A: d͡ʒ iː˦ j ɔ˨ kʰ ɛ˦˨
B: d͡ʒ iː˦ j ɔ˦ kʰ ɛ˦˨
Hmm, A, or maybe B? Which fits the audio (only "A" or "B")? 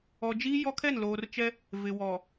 B